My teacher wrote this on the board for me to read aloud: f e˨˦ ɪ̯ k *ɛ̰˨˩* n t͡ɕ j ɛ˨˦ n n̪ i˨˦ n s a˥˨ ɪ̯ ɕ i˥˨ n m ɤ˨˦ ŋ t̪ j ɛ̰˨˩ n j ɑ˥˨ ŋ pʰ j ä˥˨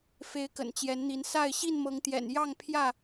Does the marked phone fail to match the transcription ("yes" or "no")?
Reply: yes